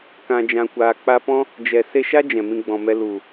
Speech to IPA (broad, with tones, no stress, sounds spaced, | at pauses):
k ã˨ d͡ʒ ã˨ kʷ aː˨ k͡p a˧ p ɔ̃˦ | d͡ʒ ɛ˨ s e˧ ʃ a˦ d͡ʒ ɛ̃˨ m ĩ˧ ɡ͡b ɔ̃˨ m ɛ˧ l u˨